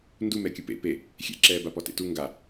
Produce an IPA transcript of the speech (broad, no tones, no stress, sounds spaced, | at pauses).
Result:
n d u m ɛ kʲ ɯ p ḛ p e | xʲ ḛ ǁ ɛː b a p ɔ t ḛ t u ŋ ɡ a